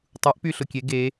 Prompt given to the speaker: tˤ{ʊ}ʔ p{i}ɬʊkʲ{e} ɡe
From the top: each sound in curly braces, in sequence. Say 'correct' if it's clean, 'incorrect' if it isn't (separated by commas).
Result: incorrect, incorrect, correct